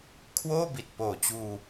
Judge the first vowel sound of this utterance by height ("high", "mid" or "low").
mid